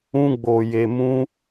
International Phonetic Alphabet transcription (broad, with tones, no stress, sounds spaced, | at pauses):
ũ˧ ɡ͡b o˨ j e˨ m ũ˧